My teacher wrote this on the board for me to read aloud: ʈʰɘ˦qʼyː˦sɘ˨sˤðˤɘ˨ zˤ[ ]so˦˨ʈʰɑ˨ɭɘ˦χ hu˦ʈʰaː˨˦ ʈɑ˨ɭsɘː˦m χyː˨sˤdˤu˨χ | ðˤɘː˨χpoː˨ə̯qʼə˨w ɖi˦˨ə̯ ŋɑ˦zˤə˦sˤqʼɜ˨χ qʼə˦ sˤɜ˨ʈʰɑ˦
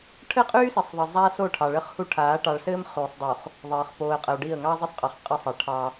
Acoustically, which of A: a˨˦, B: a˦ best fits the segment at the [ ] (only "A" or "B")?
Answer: B